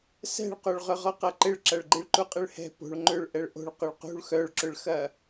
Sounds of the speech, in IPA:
s ɛ̤ ɭ q o ɭ ʁ ʏ ʁ ɔ q ɐ ǃ ɪ ɭ ǁ ɐ ɭ ɡ͡ǃ i ɭ ǃ u qʼ ɪ ɭ h ɛ̤ p o̤ ɭ ŋ͡ǃ ʏ ɭ ʔ ɛ ɭ ʔ o̤ ɭ q ʊ ɭ q ṳ ɭ x œ ɭ ǁ ʏ ɭ x ɐ

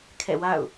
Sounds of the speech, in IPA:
kʰ ɛ̰˦˨ w a̰˦˨ ʊ̯

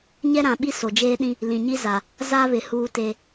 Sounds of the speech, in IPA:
ɲ ɛ˦ ɾ ã˨ ɓ i˦ s o˨ d͡ʒ eː˦ ɗ ĩ˦ | l ĩ˨ ɲ i˦ z a˨ | z a˦ β ɪ˨ h uː˦ t e˦

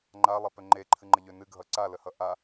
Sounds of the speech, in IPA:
ŋ͡ǃ a lˠ e p ø ŋ͡ǃ e ǃʰ ɨ ŋ͡ǃ ə ʎ ø n ɨ ɡʱ ʌ ǀ a l ə h ʌ ʔ a

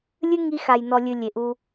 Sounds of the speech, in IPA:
lʲ ɨ˦ ŋ i˧ x a˨ j n ɔ˨ lʲ ɨ˨ lʲ e˨ ʔ u˧

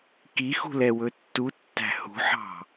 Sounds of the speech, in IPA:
k i x ṳ l ɛ w ɵ tː u tː æ̤ h ṳ ħ ɑ̤

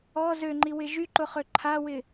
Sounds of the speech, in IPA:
ɔ z ø ŋ͡ǃ i w ɪ ʒ y ǃ ʊ χ ø ǃʰ a w ɪ

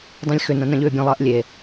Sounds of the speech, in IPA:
dˤ œ̃ lʲ x ʏ n ɐ̃ n ɐ̃ ʎ ʏː bʲ ɐ̃ lˠ ɐː ʔ lʲ e

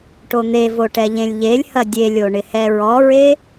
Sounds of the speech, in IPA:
ʈ o n̪ e v o ʈ ɛ ʎ ẽ lʲ ʎ e lʲ h ɐ dʲ e lʲ o ɳ ɪ h ɛ ɹ ɔ ɹ e

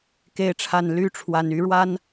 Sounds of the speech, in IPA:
k e˨˦ ɪ̯ ʈ͡ʂʰ a˨˩ n l y˨˦ ʈ͡ʂʰ w a˨˩ n y˨˦ ɻ w a˦ n

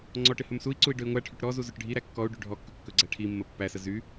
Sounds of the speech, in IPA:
ŋ͡ǀ ɔ ʈ ɪ h ɵ m s u i̯ ǀ u i̯ ɖ ɵ i̯ ŋʷ æ ʈʰ y ʈ ɾ ɔ z u z ɵ ʈ ɖʱ i ɾ æ kː ɔ u̯ ɖ y ɖʱ ɔ kː ɵ kː ɵ ɡ͡ǀ æ ʈʰ i mː ə pː æ s ə z y

